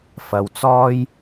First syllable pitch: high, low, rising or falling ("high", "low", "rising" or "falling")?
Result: low